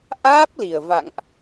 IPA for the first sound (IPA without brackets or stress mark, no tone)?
ʔ